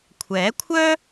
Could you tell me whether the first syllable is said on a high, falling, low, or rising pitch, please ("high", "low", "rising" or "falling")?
rising